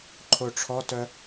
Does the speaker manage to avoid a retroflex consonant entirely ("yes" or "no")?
no